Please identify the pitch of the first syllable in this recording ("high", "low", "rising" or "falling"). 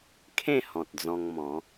falling